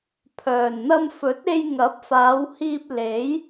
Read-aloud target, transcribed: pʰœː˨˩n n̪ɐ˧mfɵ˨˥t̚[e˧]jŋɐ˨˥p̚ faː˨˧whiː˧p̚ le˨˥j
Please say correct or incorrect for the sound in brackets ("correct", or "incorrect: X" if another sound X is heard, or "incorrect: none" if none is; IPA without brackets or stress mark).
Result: correct